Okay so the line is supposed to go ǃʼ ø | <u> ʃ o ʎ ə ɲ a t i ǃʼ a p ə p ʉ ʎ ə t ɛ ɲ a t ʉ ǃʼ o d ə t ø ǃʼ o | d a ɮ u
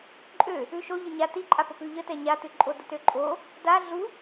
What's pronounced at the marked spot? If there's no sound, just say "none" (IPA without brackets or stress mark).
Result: ʉ